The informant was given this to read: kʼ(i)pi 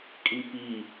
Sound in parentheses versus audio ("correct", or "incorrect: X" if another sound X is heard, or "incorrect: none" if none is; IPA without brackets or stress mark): correct